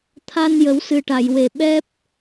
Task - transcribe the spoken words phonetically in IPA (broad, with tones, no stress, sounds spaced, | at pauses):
t̪ʰ a˧ n j ə˨˩˦ w s ɨ˨˩ ʈ a˨˩˨ j w e˨˩ ɓ ɛ˦˥ p̚